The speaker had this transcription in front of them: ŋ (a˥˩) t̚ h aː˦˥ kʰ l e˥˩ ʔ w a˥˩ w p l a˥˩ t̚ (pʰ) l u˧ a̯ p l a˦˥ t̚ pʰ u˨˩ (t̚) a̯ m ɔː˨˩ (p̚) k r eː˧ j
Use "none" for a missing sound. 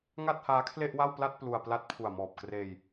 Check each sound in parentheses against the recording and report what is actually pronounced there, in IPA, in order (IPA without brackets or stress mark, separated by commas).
a˥˩, p, none, p̚